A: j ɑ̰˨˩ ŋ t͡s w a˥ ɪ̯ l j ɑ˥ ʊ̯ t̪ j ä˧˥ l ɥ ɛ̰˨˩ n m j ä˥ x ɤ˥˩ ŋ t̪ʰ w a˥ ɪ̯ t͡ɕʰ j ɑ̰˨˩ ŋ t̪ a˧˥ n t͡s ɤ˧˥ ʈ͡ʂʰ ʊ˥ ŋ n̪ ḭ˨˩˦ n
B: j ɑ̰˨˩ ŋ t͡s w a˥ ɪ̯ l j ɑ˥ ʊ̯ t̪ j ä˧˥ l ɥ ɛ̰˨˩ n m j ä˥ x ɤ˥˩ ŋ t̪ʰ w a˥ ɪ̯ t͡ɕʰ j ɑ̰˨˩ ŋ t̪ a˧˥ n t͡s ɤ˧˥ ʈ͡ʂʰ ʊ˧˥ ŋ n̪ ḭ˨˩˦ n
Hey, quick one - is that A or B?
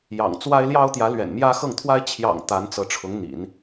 B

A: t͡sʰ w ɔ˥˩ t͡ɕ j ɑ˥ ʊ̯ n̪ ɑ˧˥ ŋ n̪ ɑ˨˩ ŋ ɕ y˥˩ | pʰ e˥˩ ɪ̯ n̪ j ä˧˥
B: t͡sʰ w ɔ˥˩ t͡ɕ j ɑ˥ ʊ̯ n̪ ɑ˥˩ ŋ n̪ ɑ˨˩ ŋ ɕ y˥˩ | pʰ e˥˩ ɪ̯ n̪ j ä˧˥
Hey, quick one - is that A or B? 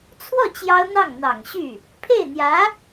B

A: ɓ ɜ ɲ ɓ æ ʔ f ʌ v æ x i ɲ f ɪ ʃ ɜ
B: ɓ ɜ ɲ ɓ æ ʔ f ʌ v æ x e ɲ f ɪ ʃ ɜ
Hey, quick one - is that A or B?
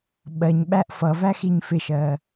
A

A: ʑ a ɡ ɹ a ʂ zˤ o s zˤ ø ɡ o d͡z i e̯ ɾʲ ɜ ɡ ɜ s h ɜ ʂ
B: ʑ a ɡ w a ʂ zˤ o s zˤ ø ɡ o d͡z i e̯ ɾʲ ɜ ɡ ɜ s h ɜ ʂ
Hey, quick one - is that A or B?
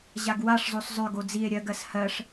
B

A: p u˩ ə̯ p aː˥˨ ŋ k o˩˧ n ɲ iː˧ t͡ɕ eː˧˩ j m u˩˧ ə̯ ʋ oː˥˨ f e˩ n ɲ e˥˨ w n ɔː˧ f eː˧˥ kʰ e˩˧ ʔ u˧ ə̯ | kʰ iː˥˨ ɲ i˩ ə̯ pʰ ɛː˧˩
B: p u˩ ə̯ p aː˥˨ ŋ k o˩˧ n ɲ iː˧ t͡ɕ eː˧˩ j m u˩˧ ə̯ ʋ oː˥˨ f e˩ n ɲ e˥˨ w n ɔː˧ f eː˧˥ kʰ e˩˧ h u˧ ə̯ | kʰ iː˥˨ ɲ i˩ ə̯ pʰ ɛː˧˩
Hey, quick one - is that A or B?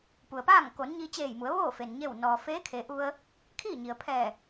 A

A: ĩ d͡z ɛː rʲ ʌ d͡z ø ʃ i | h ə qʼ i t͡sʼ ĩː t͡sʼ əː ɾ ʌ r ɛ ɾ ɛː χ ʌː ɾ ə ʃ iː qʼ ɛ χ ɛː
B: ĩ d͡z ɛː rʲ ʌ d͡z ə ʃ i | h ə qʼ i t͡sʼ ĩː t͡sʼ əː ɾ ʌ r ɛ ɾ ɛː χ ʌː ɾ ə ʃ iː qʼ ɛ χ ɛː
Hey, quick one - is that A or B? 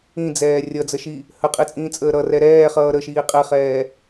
B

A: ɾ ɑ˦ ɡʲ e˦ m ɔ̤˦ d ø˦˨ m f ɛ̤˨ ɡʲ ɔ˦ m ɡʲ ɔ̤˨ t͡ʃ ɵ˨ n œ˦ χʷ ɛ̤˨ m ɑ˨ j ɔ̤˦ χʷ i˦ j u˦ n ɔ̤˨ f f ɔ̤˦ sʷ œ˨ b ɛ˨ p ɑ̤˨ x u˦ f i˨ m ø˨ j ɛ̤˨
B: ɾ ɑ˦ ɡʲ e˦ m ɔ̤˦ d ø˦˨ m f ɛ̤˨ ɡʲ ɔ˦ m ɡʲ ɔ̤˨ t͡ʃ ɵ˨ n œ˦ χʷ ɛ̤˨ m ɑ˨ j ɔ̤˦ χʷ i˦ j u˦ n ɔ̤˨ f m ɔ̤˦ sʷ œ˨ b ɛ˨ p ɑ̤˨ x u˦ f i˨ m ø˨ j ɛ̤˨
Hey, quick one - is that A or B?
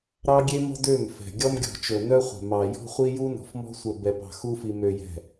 B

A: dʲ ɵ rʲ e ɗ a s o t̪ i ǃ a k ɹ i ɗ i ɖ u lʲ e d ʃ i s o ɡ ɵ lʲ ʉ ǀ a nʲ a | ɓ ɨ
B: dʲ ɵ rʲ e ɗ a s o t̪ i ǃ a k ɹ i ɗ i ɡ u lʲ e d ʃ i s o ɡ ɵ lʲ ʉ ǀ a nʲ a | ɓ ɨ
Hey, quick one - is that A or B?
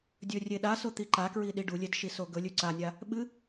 A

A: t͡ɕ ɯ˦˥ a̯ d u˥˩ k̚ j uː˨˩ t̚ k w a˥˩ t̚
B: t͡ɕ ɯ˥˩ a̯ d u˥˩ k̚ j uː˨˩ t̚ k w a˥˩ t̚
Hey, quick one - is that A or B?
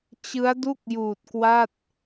A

